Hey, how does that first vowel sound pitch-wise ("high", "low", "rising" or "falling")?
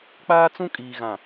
high